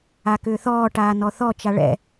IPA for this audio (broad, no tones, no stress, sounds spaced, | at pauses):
a k ʏː θ ɔː ʈ aː n ɔ θ ɔ t͡ʃ a ɭ ɛ̰